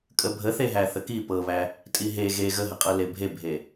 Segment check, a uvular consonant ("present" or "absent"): present